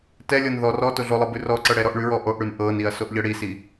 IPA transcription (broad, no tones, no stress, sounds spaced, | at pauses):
t ɛ lʲ ɤ n ð ɔ r ɔ t o ɮ o lˠ ɤ b ʉ r ɔ ǀ ɤ ɽ ɛ ɾ ɔ ʔ ɳ ʉ ɹ ɔ ʔ o ʔ ɽ ʉ n ʔ ɤ n i ɐ̯ s o ʔ ʎ ɤ ɽ i s i